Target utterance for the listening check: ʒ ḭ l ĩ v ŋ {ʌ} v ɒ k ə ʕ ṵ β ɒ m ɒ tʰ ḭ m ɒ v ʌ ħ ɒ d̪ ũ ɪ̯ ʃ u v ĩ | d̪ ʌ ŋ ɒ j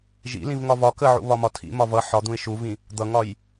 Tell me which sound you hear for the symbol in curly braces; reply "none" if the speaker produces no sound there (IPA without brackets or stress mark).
ɒ